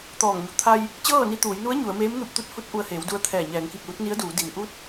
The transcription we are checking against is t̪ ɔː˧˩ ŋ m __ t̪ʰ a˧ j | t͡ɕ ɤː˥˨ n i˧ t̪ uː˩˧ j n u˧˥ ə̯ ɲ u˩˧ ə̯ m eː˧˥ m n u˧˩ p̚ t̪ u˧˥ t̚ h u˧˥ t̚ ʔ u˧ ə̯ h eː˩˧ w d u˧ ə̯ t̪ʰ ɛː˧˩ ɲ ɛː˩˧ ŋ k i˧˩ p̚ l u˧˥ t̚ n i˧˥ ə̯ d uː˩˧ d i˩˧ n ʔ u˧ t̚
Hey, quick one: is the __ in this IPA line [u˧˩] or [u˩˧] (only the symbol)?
u˧˩